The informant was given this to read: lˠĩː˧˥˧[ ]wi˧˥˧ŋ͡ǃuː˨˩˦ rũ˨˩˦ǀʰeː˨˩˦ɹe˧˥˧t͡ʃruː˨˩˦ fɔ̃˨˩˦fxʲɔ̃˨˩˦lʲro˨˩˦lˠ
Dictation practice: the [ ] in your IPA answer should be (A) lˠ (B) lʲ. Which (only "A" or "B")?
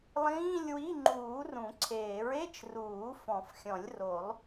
B